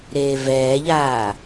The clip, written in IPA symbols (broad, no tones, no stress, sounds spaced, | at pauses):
ɾ eː v ɛː ʎ aː